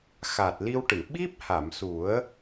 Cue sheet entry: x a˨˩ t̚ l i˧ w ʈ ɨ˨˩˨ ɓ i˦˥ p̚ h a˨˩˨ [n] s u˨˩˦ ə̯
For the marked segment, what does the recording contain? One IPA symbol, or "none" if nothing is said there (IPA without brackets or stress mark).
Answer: m